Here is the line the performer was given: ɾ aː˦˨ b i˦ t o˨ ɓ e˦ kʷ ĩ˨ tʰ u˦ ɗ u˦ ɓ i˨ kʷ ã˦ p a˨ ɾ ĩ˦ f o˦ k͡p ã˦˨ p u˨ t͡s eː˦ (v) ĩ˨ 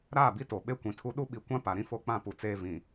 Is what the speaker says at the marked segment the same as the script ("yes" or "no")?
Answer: yes